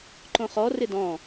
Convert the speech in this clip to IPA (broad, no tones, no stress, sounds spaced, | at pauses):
ǃ õ χ ɔ r ɪ d ɔ̃